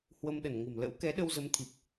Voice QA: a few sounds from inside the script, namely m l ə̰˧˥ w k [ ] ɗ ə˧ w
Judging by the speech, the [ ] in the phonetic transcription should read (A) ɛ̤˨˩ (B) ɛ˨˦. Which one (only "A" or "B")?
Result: B